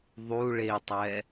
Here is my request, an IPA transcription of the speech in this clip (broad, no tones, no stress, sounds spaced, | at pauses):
ðˤ u ɭ e tˤ ɛ